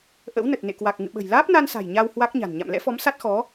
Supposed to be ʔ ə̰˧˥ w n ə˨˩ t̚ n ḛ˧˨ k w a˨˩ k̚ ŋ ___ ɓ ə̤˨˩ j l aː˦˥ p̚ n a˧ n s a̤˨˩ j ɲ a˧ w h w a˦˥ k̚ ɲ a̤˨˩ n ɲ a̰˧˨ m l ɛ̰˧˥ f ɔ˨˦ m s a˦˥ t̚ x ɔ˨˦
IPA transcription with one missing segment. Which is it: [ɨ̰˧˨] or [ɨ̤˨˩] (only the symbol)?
ɨ̰˧˨